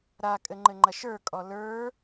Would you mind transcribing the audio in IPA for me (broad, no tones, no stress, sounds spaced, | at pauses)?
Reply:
ɾ a kʼ ɘ ŋ͡ǃ ɘ ŋ͡ǃ ɐ ʃ ə˞ kʼ ɔ l ə˞